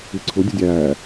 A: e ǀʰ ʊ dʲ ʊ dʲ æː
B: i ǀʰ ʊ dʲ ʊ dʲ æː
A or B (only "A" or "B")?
B